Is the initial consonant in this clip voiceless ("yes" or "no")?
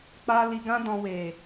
yes